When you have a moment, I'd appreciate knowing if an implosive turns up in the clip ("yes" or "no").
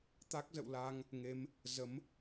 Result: no